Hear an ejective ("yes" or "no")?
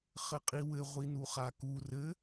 yes